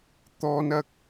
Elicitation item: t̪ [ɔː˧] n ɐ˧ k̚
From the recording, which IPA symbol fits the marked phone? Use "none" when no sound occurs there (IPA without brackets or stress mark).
ɔː˧